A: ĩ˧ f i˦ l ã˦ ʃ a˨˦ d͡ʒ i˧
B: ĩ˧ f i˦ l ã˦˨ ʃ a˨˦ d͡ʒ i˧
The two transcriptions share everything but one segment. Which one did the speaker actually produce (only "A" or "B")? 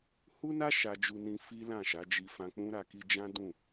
B